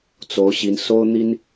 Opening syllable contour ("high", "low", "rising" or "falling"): rising